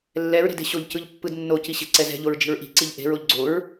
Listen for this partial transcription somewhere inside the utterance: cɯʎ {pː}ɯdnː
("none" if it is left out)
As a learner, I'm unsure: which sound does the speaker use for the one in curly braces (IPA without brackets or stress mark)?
pː